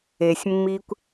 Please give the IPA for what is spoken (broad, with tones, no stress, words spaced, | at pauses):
e˨sʲmːi˦kʷ